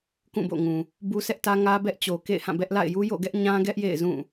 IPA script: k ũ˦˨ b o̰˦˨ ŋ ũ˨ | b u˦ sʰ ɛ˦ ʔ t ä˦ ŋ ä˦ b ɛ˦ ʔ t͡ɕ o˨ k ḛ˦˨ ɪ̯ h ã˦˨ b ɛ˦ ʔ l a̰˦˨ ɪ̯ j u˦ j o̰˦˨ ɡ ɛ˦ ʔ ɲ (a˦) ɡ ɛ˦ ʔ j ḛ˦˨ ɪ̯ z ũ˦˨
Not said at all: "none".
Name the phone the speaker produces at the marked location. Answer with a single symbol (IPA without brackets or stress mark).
ã˦